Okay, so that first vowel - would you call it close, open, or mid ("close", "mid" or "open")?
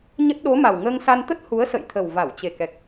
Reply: mid